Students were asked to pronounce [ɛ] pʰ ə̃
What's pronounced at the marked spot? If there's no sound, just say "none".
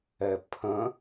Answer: ɛ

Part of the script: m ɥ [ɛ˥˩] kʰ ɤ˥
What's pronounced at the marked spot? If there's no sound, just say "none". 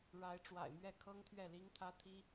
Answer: ɛ˥˩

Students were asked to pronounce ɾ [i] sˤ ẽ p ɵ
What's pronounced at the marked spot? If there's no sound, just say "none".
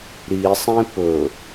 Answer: i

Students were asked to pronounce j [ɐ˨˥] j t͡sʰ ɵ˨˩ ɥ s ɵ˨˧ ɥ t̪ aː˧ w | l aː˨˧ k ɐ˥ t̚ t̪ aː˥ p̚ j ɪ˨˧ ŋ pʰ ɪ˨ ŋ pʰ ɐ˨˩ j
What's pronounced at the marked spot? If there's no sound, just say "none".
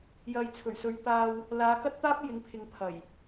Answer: ɐ˨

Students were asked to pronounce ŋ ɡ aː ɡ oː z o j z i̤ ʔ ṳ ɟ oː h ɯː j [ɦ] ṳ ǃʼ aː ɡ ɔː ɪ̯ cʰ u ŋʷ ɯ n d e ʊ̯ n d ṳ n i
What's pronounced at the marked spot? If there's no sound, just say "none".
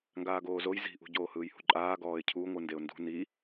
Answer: h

